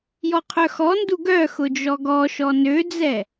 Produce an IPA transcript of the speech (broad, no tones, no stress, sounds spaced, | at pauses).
j ɔ qʰ œ x ɔ n d u ɡ œ x ʊ d͡ʒ ɔ ɡ ɔ ʃ ɔ n ø d͡z ɛ